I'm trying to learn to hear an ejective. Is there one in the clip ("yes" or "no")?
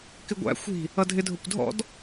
no